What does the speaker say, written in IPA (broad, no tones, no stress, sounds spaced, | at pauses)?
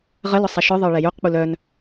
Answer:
ʁ ə l ʊ sˤ ɛ ʃ œ ðˤ ə˞ ɭ ɛ j u q k͡p u l œ n